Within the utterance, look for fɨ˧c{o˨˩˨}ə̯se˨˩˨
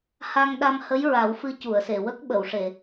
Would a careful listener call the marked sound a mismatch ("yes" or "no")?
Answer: yes